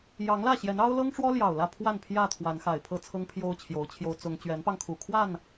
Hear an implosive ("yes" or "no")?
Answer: no